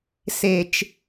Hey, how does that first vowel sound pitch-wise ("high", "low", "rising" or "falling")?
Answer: low